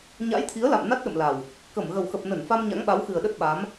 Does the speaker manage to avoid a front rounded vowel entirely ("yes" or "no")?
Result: yes